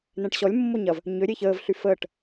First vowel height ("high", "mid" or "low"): mid